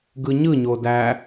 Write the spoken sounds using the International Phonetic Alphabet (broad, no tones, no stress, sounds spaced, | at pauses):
ɡ ɯ ɲ ɯ ɲ o d æ